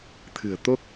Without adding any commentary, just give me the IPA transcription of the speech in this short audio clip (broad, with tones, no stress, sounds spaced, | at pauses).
t̪ʰ ɨ̤˨˩ ə̯ t̪ o˦˥ k̚